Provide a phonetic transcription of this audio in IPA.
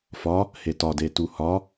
f ɒ | h e t ɒ d e t u h ɒ

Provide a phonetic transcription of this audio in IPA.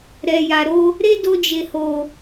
ɾ ɛ˨ j a˨ ɾ o˧ | ɾ e˦ d o˧ d͡ʒ e˨ h o˨

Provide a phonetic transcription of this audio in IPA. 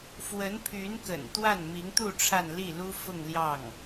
f w ə˧˥ n pʰ y˧˥ n k ə̰˨˩ n t̪ w a˥˩ n m i˧˥ ŋ t̪ u˥˧ ʈ͡ʂʰ a˥˧ n l i˥˩ l u˥ f ʊ˥˧ ŋ l j ɑ˥˩ ŋ

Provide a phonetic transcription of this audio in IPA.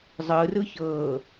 zˤ ɯ r ɯ ç ɤː

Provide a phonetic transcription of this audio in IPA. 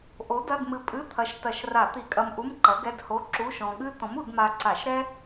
ʔ o˨˥ d ɐ˧˥˧ d m ɨ˧ pʼ ɨ˧˥˧ t̪ʰ ɐ˨˥ ʃ t ɐ˧˩˧ ʃ r a˧˩˧ t̪ i˧˩˧ kʼ ɐ˧ m ʔ u˧˥˧ m ǃ ɐ˨˥ ɡ ɛ˧˥˧ d h o˧˥˧ ǁ u˧˥˧ ʃ ɔ̃˧ ɠ ɨ˥ t ɔ̃˨˥ m u˧˩˧ d m a˧ ǀ a˧˩˧ ʃ ɾ ɛ˥

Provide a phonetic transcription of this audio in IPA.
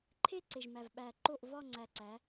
ǃʰ e˥˧ ǀ e˨˩ ʒ m æ˨˩ v ɓ æ˨˩ ǃ o˥˩ ʔ v ɒ˥˧ ŋ͡ǀ æ˨˩ ǀ æ˩˧

